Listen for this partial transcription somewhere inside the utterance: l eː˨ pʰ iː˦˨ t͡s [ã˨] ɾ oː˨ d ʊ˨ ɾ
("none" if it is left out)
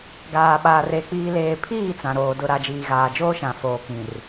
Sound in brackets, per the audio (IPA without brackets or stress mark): ã˨